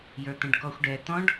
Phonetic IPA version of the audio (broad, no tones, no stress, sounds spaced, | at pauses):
j ə˞ t̪ ə̃ ɖ k ɔ xʷ ɖ ɛ t̪ ɔ̃ ɖ